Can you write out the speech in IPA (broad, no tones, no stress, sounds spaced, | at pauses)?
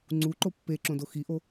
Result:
ŋ͡ǀ u ǃ o pː e ǁ õ d o x i ʔ o